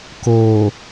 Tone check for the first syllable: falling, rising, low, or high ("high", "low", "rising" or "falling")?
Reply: low